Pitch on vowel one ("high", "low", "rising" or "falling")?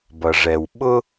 low